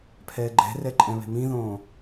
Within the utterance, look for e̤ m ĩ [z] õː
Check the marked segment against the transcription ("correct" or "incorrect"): incorrect